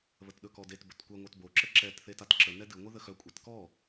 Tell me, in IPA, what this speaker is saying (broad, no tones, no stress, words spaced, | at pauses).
βətɗɵkɔdet bɵtkʷɛ ŋʷœtbo ǁəǁɛt θetatǁə nɛdɨ ŋʷɨðəxœ kʷʼɛtkɔ